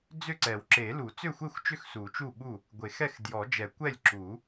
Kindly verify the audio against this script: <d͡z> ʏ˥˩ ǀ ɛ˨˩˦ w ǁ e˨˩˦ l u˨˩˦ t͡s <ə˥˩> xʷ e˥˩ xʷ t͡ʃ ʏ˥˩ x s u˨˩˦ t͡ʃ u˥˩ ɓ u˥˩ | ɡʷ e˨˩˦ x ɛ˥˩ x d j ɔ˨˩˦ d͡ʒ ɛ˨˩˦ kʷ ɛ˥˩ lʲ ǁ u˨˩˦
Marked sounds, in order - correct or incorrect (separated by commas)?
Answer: correct, incorrect